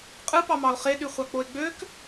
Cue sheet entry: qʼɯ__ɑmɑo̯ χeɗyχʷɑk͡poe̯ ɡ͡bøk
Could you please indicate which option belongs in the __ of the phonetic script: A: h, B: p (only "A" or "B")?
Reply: B